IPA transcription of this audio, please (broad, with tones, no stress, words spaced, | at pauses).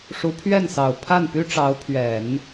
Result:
ʂu˧˥pʰɥɛ˥˩nsɑ˨˩ʊ̯ pʰa˥˩npy˥ʈ͡ʂɑ˧˥ʊ̯ pʰɥɛ˨˩˦n